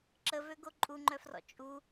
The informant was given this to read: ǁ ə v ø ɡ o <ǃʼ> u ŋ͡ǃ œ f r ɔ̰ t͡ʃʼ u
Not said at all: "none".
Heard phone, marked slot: ǃʼ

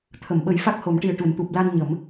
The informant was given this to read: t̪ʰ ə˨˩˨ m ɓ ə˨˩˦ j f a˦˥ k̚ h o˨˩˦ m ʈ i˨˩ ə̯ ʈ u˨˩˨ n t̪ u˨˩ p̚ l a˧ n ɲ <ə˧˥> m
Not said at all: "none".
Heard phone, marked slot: ə˨˩˦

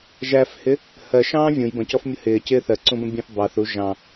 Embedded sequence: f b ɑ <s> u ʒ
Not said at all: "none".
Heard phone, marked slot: θ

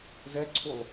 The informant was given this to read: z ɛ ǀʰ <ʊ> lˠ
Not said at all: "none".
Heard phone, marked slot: u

